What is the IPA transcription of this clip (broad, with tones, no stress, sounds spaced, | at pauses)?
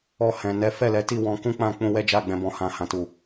ɔ˧ h ɛ̃˨ n ɛ˨˦ f ɛ˦˨ l ɛ˨˦ t i˦˨ w ɔ̃˧ k ũ˦ k͡p ã˦˨ k͡p ũ˧ w ɛ˦ d͡ʒ a˦˨ ɡ͡b ɛ̃˧ b ɔ̃˧ h ã˧ h ã˦ t u˦˨